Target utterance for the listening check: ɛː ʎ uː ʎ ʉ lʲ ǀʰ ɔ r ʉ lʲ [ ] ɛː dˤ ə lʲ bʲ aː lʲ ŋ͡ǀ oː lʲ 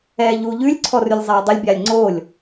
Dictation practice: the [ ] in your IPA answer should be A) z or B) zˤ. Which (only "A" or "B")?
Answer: B